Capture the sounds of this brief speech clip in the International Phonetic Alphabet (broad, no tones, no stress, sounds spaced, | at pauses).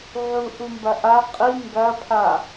ʕ u ʔ u m b ɐ ʔ a qʼ i ŋ ɡ ɐ pʰ a